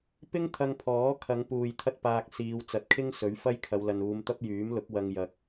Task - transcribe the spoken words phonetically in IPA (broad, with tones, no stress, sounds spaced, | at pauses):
p ɪ˥ ŋ t̪ʰ ɐ˧ ŋ pʰ ɔː˨˥ kʰ ɐ˨˧ ŋ p uː˨ j t̪ʰ ɐ˥ t̚ p aː˧ k̚ s iː˨˧ w t͡s ɐ˨˥ t̚ kʰ ɪ˥ ŋ s ɵ˨˥ ɥ f ɐ˥ j kʰ ɐ˨˧ w l ɐ˨ n uː˨˧ m t̪ ɐ˥ p̚ j yː˨˥ m l ʊ˨˥ k̚ w ɐ˧ ŋ j ɐ˨ k̚